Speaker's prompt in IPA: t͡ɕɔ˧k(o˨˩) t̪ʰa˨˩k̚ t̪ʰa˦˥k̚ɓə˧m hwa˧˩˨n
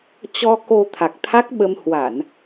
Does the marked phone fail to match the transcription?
yes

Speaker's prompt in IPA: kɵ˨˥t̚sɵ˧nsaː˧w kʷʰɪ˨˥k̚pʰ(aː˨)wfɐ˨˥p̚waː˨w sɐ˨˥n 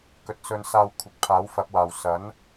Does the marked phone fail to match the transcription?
yes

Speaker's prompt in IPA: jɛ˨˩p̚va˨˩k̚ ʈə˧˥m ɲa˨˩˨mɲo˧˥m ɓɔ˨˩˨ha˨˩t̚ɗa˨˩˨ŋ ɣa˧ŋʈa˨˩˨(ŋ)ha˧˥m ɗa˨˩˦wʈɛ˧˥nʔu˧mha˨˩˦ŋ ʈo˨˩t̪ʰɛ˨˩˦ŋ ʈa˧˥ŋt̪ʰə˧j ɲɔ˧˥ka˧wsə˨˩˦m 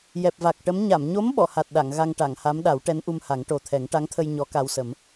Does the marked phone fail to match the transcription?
no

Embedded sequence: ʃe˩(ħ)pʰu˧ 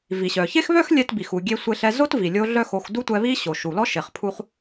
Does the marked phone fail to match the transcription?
yes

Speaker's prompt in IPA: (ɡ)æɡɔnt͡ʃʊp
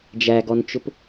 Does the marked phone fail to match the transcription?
yes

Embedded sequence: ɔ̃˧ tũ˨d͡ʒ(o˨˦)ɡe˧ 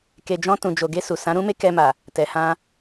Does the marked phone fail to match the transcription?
yes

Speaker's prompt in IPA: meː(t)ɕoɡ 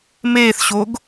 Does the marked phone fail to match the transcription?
yes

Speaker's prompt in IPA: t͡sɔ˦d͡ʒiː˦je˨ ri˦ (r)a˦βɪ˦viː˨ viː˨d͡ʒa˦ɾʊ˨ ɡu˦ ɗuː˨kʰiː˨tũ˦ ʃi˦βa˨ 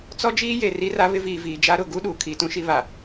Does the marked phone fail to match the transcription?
no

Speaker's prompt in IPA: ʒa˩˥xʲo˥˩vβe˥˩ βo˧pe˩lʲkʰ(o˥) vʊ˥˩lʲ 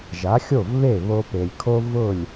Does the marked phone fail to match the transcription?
no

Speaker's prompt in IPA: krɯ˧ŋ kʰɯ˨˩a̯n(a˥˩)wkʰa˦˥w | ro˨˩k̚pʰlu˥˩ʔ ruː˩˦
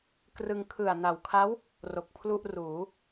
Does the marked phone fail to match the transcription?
yes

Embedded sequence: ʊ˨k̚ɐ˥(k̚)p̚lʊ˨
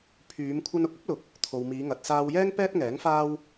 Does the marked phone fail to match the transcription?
yes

